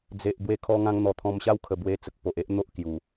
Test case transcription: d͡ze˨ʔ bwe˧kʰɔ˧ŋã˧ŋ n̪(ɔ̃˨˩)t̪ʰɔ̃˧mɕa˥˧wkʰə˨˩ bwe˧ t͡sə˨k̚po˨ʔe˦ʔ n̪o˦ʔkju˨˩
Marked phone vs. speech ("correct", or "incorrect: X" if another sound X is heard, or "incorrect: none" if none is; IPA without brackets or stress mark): incorrect: ɔ˨˩